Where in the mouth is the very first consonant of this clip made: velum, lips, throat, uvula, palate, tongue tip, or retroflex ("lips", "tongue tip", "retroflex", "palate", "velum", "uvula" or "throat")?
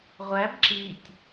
uvula